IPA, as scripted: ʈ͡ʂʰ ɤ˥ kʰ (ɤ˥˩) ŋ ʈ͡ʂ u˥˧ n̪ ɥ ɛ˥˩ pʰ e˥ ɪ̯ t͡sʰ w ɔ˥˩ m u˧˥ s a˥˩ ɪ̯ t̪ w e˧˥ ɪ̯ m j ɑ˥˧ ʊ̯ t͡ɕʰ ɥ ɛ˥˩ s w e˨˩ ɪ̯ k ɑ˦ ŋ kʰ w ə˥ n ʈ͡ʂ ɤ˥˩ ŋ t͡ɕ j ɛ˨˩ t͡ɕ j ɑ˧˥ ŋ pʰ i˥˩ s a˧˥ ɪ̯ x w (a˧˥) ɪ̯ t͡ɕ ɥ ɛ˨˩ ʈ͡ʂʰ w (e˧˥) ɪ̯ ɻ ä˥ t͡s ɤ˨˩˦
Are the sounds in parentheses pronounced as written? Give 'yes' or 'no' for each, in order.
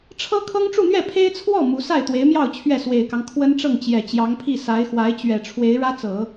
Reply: no, yes, yes

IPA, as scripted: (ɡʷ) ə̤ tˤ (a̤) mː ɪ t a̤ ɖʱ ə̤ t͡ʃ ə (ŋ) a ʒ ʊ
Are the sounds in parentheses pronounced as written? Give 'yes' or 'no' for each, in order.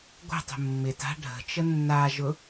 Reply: yes, no, no

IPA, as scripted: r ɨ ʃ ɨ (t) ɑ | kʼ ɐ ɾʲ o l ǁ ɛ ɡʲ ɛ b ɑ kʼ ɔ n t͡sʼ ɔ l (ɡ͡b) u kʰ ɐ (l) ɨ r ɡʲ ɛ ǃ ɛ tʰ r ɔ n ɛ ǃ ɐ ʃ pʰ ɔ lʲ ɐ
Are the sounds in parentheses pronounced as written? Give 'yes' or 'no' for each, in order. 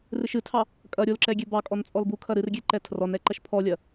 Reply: no, no, no

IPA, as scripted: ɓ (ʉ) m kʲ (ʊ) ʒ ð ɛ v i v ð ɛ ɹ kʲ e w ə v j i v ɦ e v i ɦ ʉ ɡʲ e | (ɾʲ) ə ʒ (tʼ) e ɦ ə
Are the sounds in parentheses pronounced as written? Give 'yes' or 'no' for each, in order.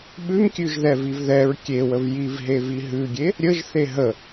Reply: yes, no, yes, no

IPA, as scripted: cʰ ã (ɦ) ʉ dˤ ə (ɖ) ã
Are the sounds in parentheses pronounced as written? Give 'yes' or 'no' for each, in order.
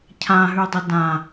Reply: yes, no

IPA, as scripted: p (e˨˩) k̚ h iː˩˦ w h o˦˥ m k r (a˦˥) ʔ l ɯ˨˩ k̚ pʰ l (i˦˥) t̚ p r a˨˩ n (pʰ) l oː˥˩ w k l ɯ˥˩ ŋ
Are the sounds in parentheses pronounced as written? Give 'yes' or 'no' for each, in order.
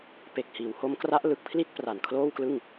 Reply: yes, yes, no, no

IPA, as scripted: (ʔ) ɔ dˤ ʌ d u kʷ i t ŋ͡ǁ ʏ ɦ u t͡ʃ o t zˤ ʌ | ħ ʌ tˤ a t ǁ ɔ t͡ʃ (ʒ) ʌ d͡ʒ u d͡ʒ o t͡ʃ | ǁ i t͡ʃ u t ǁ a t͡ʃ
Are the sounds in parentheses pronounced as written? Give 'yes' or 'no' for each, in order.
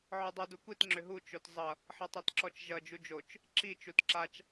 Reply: no, yes

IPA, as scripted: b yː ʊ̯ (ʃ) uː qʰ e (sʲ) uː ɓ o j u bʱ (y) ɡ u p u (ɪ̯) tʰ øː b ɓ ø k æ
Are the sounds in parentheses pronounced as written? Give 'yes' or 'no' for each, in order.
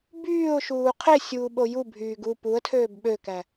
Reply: yes, yes, no, no

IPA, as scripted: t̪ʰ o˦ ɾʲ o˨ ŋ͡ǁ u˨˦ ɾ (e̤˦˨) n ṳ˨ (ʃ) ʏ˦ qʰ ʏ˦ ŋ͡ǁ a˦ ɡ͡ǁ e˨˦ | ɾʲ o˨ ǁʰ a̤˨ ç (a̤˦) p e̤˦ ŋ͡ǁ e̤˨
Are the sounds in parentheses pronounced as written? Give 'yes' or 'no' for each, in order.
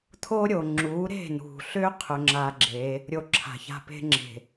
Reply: yes, no, no

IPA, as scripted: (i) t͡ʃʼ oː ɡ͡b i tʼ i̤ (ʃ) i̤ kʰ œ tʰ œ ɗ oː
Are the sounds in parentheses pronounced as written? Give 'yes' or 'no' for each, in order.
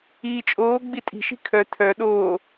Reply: no, yes

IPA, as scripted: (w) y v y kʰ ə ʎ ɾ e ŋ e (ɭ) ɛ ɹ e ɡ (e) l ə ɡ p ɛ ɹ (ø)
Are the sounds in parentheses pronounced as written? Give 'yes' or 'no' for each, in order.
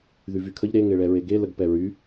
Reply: no, yes, yes, no

